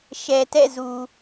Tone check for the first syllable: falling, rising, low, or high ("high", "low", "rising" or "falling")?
low